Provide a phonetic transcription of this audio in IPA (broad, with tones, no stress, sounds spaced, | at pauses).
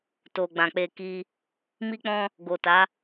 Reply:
t o˨ ɡ͡b ã˨ k͡p e˧ k i˧ | m i˦ k͡p ɔ̃˦ | ɡ o˨ t a˨˦